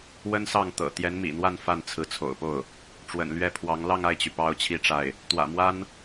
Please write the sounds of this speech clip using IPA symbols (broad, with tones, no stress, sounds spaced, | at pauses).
w ə˥ n s ɑ˥˩ ŋ t̪ ɤ̰˨˩ t̪ j ɛ˧˥ n m ḭ˨˩ n̪ w a˥˧ n f a˥˩ n t͡sʰ ɹ̩˧˥ t͡sʰ o̰˨˩ ʊ̯ p o˥˩ ʊ̯ | ʈ͡ʂ w ə̰˨˩ n l ɥ ɛ˥˩ pʰ w ɑ˧˥ ŋ l ɑ˥˧ ŋ a˥˩ ɪ̯ t͡ɕ y˩ p ɑ˥ ʊ̯ t͡ɕʰ i˥˧ ʈ͡ʂ a˥˩ ɪ̯ | t̪ w ä̰˨˩ m w a˥ n